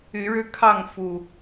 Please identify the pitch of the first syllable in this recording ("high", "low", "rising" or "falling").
rising